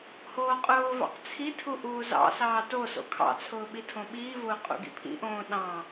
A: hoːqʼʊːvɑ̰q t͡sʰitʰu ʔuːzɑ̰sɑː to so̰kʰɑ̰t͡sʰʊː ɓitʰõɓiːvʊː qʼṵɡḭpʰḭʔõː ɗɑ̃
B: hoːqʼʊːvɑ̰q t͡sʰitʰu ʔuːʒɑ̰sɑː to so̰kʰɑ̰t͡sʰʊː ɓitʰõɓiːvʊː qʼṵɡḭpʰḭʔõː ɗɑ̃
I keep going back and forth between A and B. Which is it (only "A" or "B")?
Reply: A